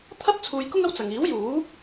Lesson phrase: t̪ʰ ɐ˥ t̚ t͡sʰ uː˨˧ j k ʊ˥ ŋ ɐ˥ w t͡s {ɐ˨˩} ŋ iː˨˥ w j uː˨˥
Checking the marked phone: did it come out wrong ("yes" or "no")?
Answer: yes